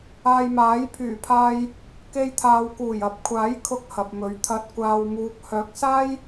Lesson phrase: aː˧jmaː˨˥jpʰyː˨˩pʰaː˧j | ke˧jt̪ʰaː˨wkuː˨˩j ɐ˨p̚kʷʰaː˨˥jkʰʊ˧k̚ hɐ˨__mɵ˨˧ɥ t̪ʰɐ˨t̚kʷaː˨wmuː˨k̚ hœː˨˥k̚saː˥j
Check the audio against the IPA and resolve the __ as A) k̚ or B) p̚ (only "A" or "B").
B